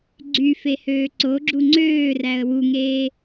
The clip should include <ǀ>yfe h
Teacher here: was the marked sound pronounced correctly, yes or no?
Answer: no